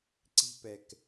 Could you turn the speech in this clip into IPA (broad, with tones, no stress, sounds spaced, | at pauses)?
ǀ i̤˦ p ɛ˨ k